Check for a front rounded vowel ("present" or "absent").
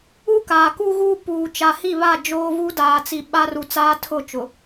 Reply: absent